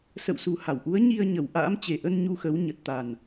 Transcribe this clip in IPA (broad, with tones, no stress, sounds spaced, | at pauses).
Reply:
s ə̰˧˨ w s u˨˩ h a˧˩ w ʔ u˨˦ ə̯ ɲ i˧ ə̯ ɲ ə˧˩ w ʔ a̰ː˧˥ m t͡ɕ e˨˩ ʔ ə˧ n ɲ u˧ x ə˨˦ w ɲ ə˨˩ t̚ t̪ a˨˩ n